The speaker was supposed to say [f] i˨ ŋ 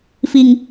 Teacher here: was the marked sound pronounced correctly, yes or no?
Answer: yes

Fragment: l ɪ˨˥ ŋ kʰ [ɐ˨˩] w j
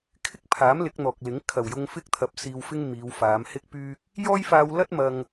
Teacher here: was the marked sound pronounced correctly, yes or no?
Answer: yes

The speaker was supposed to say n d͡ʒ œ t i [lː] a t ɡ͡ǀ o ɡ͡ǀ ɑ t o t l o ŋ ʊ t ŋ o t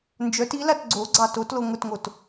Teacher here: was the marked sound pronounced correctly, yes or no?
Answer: no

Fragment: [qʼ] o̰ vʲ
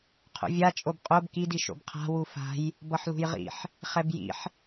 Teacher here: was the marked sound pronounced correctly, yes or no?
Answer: no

